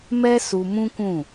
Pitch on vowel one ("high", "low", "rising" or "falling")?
high